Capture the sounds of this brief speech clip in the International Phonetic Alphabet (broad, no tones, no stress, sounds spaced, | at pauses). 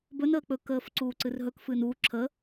b ɵ n əː k͡p ɵ k əː f ǀ uː ǀ ɨ r ɦ ɵ k f ɨː n uː ǁʰ ə